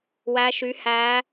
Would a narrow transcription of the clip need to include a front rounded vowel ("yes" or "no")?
yes